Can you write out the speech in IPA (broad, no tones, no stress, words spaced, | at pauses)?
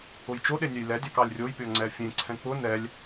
ʊjt͡ʃoɗe nʲɛjlɛdʲɑk ɑlʲrʲojpʲɔ ŋ͡ǀɛfʲẽǀʰɛ̃ k͡pʊ nɛlʲ